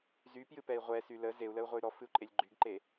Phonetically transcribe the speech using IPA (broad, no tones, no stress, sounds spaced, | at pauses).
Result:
z y p j ɨ p ɛ i̯ ʁʷ ɛ s y l ə z e u̯ l ə u̯ ʁʷ e y̯ ɾ ɔ f ɨ u̯ ǃʼ e lʲ ɡ͡ǃ y ɡ ǃ e